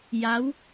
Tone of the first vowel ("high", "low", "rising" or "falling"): rising